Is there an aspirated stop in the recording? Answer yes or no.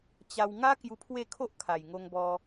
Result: yes